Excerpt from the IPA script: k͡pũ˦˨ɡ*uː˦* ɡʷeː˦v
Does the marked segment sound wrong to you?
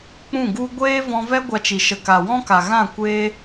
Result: yes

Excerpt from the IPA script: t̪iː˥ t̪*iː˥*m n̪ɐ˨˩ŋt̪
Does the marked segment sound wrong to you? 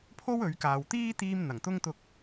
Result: no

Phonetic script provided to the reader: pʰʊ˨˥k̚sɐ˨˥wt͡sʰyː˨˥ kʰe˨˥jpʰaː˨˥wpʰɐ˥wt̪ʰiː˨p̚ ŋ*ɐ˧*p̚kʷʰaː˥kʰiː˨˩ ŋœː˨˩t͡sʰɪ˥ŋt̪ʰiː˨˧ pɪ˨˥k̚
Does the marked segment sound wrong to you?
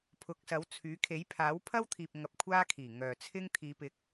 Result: no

